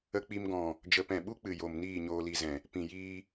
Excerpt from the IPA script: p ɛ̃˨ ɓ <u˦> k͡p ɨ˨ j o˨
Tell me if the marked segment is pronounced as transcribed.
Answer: yes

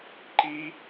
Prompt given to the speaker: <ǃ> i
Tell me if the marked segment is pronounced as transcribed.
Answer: yes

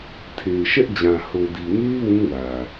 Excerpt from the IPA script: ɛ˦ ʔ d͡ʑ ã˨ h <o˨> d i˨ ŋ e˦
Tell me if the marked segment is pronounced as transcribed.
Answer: yes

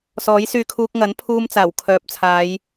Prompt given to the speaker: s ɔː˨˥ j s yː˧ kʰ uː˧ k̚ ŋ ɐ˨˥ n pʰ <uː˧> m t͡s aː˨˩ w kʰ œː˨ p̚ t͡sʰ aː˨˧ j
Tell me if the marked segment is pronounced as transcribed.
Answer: yes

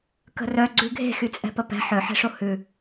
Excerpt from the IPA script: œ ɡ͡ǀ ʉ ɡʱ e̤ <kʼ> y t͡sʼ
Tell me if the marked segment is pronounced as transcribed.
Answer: no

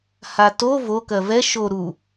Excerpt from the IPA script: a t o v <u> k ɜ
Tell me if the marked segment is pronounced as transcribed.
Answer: no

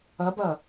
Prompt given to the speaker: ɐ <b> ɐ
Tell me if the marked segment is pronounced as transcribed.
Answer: yes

